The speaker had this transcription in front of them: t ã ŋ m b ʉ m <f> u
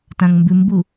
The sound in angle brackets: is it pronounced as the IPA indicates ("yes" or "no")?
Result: no